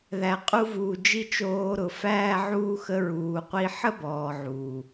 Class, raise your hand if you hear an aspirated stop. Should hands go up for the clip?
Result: no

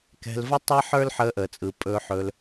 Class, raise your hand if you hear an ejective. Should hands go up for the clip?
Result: yes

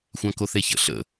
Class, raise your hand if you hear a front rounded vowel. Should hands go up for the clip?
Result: no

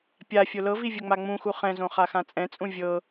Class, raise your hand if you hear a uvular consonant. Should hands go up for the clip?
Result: yes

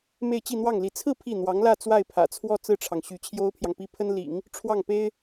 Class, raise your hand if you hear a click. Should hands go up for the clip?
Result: no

